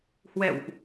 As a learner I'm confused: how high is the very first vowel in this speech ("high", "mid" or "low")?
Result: mid